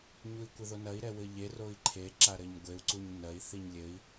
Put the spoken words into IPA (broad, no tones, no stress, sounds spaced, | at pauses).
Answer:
ɲ u i̯ kʷ ɘ ð o n ɐ i̯ ɾ ɛ w ɘ ʎ e r o i̯ ǃʰ e ǁ a ɾ ɘ ɲ ɡʷ e u̯ ǀ u ɲ n ɐ i̯ θ i ɲ lʲ ɘ i̯